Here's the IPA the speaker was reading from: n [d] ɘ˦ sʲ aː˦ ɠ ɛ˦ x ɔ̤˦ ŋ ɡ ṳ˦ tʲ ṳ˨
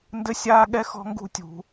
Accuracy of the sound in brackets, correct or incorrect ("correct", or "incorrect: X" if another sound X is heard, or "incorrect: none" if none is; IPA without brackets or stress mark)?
correct